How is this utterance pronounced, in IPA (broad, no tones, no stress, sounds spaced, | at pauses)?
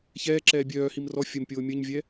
ç ɛː ǁ ɛː bʲ œː h i m r ɔ fʲ ə m pʲ oː mʲ ə ɲ vʲ ɛ